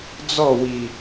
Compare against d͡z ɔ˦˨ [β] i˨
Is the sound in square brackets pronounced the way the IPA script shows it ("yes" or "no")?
no